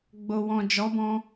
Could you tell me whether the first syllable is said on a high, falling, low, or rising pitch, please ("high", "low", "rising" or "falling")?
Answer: low